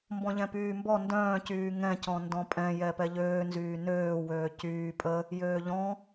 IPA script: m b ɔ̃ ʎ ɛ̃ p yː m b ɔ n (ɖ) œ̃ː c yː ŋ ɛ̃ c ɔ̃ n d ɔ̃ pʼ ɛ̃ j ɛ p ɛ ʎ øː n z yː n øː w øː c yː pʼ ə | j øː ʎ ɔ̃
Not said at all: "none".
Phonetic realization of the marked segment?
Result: d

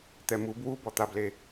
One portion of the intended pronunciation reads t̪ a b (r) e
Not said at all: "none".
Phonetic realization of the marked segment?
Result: l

